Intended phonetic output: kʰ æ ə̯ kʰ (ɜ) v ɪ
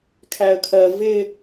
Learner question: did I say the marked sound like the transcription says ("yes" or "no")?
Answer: yes